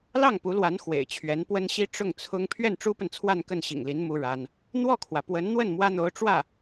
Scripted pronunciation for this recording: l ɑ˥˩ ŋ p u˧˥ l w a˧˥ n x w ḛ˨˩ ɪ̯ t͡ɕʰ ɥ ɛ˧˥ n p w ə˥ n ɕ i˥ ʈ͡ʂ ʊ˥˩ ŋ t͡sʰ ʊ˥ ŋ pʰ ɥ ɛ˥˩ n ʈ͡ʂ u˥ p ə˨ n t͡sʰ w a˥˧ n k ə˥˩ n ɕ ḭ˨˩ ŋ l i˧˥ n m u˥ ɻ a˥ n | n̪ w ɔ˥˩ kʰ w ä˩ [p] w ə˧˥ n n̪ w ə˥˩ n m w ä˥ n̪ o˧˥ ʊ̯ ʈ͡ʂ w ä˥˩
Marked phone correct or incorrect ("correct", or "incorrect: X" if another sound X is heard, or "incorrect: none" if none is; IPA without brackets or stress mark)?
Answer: correct